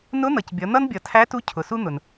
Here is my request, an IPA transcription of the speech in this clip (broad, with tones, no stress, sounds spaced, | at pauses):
n ʊ˧˥ n̪ ʌ˩ c bʲ ʌ˩˧ n̪ ʌ˥ n bʲ ʌ˩ tʰ æ˧˥ t u˧˥ cʰ ʊ˩˧ s u˥ n̪ ʊ˩ n